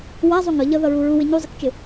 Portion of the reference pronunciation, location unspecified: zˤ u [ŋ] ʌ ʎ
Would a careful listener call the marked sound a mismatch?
no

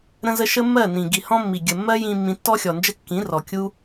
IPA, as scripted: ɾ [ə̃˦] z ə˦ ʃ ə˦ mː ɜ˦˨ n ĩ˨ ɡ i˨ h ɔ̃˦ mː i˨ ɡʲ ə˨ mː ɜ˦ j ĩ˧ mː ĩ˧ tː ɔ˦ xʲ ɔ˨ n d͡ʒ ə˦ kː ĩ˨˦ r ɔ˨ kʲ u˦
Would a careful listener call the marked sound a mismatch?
no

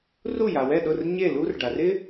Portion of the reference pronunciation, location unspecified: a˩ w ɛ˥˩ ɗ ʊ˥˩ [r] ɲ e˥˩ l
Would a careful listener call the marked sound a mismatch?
no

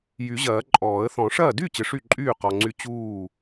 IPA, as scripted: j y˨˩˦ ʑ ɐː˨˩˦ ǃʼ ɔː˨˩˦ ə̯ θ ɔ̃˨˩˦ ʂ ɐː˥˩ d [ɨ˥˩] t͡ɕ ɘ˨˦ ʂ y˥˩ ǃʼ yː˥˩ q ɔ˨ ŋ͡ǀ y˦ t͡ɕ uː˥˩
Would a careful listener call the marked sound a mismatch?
yes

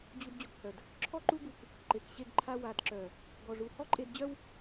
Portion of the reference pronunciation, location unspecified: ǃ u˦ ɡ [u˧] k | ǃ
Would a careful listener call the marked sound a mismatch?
no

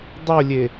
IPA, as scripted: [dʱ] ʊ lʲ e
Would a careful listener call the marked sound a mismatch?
yes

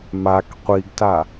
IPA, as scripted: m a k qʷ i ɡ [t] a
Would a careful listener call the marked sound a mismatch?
no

